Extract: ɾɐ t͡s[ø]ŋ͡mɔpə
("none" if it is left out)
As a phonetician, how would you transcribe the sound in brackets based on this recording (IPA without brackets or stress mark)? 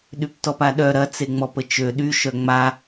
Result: e